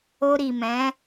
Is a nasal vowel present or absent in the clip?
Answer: present